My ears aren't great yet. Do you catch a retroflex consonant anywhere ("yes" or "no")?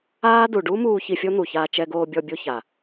yes